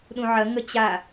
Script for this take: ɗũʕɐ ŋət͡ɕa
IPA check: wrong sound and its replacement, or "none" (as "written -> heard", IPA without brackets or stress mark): none